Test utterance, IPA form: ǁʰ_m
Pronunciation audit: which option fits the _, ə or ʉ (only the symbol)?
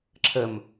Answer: ə